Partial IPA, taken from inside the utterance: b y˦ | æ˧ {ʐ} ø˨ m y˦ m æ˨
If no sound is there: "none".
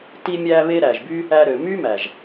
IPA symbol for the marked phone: ɾ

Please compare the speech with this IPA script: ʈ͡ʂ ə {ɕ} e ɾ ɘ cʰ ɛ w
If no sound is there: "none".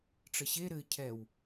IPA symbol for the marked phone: ɕ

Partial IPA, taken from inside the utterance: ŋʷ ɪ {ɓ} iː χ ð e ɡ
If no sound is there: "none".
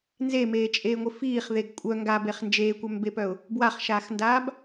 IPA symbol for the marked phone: f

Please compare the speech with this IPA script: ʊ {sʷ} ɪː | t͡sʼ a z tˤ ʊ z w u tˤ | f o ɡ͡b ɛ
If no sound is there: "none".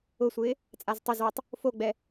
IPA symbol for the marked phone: sʷ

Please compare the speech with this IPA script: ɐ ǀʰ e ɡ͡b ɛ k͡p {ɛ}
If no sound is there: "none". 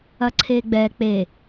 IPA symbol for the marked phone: e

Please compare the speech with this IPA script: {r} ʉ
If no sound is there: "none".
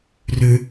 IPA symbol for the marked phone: r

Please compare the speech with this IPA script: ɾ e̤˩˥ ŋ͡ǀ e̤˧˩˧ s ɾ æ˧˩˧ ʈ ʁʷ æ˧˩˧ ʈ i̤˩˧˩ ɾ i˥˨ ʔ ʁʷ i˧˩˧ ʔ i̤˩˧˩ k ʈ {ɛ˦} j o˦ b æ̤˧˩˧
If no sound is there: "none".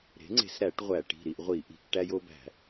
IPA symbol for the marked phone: æ˦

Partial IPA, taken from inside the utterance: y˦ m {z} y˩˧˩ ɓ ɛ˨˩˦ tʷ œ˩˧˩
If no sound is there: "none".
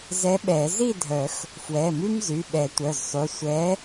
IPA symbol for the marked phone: z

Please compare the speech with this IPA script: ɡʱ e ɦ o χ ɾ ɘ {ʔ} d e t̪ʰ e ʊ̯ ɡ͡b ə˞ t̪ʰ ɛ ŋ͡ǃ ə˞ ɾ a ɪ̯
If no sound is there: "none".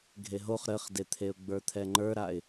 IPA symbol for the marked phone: χ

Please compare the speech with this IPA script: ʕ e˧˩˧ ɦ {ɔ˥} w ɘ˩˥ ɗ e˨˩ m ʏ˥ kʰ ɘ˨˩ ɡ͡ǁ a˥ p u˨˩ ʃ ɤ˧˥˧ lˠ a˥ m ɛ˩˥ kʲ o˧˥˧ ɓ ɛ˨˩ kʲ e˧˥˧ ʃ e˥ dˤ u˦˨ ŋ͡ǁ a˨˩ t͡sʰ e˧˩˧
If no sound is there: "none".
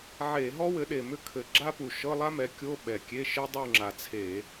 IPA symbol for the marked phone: ɔ˥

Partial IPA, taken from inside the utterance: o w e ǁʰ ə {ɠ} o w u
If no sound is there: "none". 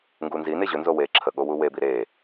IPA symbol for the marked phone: ɠ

